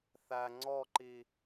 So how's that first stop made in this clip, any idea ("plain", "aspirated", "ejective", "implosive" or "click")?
click